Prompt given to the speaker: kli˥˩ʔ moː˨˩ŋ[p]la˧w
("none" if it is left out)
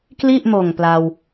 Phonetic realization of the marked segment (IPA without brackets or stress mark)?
p